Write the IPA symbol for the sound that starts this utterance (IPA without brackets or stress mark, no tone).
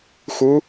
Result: x